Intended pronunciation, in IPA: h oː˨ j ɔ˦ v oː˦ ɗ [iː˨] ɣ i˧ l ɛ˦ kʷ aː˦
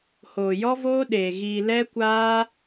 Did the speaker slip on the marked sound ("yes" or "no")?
yes